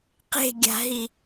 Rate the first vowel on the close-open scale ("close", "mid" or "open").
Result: mid